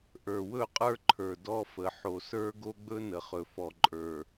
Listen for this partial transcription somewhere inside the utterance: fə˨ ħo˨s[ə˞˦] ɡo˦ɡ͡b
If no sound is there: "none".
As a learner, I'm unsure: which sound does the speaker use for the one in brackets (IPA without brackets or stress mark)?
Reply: ə˞˦